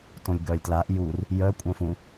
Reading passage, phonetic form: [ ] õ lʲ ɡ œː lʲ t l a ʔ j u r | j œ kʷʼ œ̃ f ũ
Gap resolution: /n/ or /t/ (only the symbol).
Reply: t